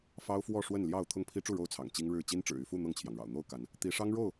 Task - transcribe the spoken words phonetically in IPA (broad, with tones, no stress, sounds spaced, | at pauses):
f ɑ˦ ʊ̯ f w ɔ˥˨ ʂ w ə˥˨ n l j ɑ˥˨ ʊ̯ t̪ʰ ʊ˥˨ ŋ pʰ i˦ ʈ͡ʂ u˥˨ ɻ o˥˨ ʊ̯ t͡sʰ ɑ̰˨˩ ŋ t͡ɕ i˦ ŋ ɻ ɻ̩˥˨ t͡ɕ i˦ n ʈ͡ʂ ɻ̩˨˩ y˥˨ f u˥˨ n̪ ɤ˥˨ ŋ t͡ɕʰ j ɑ˩ ŋ ɻ ɑ̰˨˩ ʊ̯ n̪ o˥˨ ʊ̯ k a˨˦ n | t̪ i˨˦ ʂ ɑ˦ ŋ ɻ o˥˨ ʊ̯